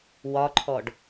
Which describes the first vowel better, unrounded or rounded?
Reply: rounded